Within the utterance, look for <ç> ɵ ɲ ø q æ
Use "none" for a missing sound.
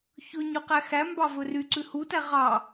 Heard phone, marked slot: ç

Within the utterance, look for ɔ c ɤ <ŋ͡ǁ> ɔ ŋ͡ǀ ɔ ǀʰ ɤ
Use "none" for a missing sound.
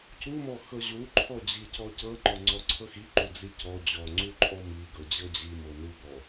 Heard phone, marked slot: ŋ͡ǃ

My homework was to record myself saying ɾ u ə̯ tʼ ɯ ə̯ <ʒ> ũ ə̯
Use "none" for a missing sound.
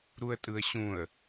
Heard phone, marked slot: ɕ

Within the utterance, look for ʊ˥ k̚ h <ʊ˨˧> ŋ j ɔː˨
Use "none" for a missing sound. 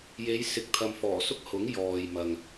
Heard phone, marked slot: ʊ˨˥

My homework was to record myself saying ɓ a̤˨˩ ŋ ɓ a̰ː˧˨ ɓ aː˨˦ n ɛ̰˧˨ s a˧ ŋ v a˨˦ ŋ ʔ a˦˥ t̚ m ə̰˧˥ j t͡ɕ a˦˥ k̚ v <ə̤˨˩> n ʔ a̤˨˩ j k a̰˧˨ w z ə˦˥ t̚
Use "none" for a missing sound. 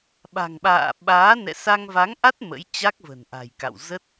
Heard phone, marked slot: ə̤˨˩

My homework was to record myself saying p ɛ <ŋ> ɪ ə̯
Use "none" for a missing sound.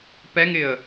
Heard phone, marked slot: ŋ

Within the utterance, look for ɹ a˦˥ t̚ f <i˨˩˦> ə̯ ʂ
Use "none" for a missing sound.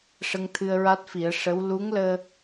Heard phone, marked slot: i˨˩˦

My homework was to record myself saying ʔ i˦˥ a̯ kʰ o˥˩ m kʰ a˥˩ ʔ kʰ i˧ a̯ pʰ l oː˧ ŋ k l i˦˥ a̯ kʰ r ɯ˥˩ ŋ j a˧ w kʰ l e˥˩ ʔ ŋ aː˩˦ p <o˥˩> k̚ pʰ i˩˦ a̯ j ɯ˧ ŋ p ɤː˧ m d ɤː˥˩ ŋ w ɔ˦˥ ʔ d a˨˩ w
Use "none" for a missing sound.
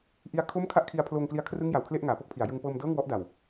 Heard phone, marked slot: o˥˩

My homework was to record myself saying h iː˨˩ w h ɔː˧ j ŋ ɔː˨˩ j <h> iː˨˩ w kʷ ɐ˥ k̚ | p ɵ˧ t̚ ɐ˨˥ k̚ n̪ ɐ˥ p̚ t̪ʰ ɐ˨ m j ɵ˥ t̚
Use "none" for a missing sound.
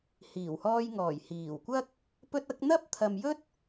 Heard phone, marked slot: h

